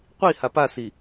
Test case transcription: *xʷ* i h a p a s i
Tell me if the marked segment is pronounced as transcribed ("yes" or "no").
no